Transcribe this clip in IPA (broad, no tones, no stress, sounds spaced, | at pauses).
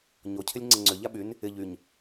ɲ o cʰ ɪ lʲ ŋ͡ǀ ɪ ŋ͡ǀ ʏ ʎ a ɓ y n | ɪ ʎ y ɲ